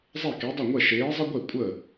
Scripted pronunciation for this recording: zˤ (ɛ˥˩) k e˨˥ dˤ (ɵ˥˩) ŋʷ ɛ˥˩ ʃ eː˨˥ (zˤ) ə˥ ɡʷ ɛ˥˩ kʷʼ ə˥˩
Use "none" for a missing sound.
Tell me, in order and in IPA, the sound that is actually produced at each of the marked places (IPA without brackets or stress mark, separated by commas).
ɛ˥˩, ɵ˥˩, zˤ